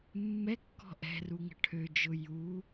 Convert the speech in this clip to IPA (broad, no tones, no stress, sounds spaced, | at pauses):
mː ɛ kː ɔ̤ ʔ ɛ̤ r u ŋ ə̤ ʈʰ ø d͡ʒ ʊ j u